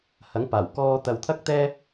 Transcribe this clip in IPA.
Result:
h ɐ˨˥ ŋ p aː˨˩ w k ɔː˧ t̪ ɐ˧ w t̪ʰ ɐ˥ k̚ t̪ ɛː˥

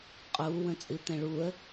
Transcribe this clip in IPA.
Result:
qʼ uː w ə̃ t͡sʼ ɨ t̪ ɛ̃ ɭ uː ə̯

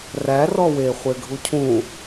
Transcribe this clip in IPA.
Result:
r æ r ɔ w e χʷ e ɡʱ u cʰ ũ

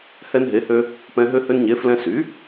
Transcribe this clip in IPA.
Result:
h ɛ˧ n ɦ e˩˥ h ø˧ | p ɛ̃˧ ɦ ø˧ h ø˧ n ɲ e˩˥ f l ɛ̃˧ s y˩˥

